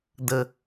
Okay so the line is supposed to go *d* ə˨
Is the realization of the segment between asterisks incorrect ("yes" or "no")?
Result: no